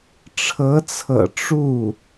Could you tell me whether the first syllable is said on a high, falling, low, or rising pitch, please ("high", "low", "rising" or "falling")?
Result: rising